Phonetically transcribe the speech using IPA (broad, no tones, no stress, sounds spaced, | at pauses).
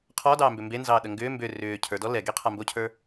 qʰ ɔ d ɑː m b ʏ m b e n z ɑː ɗ ə ŋ ɡ ʏː m b ʏ r ʏː cʰ ə˞ d ɔ l ɛ ɡ e qʰ a m b o cʰ ə˞